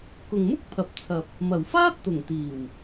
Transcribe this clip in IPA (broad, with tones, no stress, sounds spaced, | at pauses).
k ʊ˨ ŋ m ʊ˥ k̚ pʰ ɐ˨ p̚ t͡sʰ ɐ˨ p̚ | m ɐ˨˩ w f aː˥ t̚ t̪ ʊ˨˩ ŋ t̪ iː˨˩ w